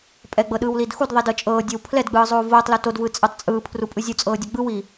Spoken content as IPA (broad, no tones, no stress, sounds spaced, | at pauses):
pʼ ɛ ɡ͡b ɤ ɗ ɯː w l i d x u d ðˤ i d ɤ t͡ʃʼ ɤː dʲ ɤ w pʰ l ɛ d ɡ͡b ɯː zˤ oː v oː tˤ l o t o d v ɯː t͡sʼ ɯ tˤ t͡sʼ ɯː pʰ r u pʼ ɯ zʲ u t͡sʼ ɤː dʲ ɛ ɡ͡b ɯ w i